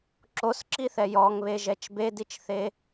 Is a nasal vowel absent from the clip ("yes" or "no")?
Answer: yes